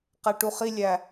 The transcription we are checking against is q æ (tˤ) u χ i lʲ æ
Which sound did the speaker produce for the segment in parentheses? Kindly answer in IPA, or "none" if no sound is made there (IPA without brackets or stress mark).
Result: ʈ